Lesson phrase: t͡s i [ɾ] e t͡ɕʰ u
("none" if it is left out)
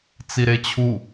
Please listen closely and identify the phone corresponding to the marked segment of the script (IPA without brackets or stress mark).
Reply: ɾ